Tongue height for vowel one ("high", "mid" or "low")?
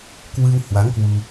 high